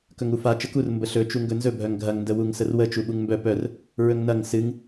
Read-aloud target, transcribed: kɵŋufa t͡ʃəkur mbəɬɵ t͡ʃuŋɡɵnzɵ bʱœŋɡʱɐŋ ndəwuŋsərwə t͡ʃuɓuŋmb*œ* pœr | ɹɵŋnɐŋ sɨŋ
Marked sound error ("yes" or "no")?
no